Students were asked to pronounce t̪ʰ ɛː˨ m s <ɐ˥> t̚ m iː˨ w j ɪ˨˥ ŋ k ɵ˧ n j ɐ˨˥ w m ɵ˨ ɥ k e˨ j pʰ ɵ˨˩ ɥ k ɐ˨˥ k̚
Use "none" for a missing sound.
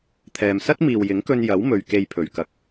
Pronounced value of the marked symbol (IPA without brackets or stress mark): ɐ˥